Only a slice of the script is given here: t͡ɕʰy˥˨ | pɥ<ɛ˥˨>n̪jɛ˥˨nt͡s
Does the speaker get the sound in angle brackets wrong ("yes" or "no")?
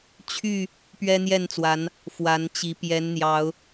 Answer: yes